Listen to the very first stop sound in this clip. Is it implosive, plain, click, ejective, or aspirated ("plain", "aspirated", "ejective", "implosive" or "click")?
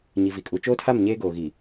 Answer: ejective